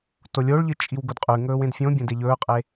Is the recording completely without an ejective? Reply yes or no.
no